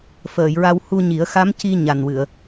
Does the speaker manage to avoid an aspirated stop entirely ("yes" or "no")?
yes